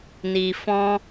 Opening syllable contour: low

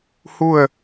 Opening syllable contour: falling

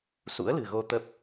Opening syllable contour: rising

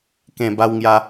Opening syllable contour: low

